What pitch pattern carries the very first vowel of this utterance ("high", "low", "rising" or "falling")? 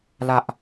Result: high